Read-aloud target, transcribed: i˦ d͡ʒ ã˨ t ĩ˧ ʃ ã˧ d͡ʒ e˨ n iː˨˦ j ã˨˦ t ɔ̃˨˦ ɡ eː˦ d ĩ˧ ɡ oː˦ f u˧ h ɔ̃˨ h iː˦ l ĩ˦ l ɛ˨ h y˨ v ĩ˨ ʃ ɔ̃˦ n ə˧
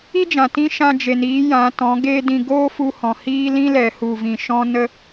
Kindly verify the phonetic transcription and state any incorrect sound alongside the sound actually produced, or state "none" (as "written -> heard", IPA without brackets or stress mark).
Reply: y˨ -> u˨